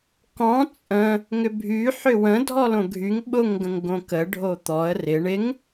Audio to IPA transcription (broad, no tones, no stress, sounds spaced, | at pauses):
k ɔ̃ t͡sʼ ə̃ | ŋ ʏ bʱ y ħ ʏ w ə̃ dʱ ɔ l õ ɡʱ y ŋ ɓ ʊ ŋ ɡ ə̃ ŋ ɡ õ k ə ɖʱ o t̪ ɔ ə̯ r ɪ ɳ ɪ ŋ